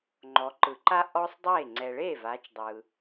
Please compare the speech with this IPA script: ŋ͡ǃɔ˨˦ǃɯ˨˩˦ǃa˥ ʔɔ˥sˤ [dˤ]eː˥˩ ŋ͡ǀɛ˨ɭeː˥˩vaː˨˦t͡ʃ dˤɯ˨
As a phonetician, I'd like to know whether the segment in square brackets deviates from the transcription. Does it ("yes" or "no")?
no